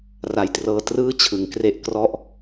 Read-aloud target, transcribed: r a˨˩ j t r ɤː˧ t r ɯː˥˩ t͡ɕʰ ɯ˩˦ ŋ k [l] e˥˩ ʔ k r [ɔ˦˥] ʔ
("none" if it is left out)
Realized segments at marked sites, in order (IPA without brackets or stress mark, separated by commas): r, ɔ˦˥